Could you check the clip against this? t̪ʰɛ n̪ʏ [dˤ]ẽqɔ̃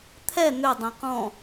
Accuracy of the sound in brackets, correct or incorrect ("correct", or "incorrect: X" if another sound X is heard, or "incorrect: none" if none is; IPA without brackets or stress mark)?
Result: correct